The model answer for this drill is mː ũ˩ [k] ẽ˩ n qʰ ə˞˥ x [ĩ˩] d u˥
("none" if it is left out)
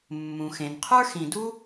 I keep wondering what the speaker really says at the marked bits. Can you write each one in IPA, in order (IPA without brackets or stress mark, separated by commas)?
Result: x, ĩ˨